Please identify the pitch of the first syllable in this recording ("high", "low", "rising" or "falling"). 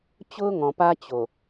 high